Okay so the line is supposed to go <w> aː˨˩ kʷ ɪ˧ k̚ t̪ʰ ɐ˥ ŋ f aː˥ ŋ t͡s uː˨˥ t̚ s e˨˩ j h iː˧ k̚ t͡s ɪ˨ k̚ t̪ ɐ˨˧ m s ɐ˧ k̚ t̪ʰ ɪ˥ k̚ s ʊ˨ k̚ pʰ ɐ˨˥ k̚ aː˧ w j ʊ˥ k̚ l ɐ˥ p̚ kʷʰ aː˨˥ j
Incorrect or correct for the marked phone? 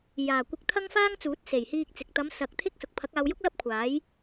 incorrect: j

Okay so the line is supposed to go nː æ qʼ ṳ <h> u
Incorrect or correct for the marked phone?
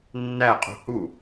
correct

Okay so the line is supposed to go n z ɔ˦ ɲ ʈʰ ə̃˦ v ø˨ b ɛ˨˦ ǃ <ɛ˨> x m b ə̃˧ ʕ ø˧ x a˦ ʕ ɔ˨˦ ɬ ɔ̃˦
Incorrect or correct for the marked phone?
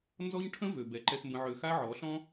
incorrect: ɛ˧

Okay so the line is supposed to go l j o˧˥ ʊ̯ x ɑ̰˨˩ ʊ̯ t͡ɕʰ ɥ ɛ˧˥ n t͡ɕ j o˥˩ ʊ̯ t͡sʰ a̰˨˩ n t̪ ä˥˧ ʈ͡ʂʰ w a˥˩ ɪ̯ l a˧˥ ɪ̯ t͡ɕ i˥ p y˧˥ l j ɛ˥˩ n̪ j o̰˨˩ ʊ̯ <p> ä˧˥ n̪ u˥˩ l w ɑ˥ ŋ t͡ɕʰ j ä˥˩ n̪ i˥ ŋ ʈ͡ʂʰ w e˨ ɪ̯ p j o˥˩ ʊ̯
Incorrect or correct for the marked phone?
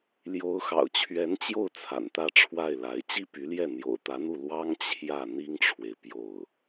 incorrect: t̪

